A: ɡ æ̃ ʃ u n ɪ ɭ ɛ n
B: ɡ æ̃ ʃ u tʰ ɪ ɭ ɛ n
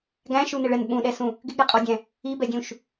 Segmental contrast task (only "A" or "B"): A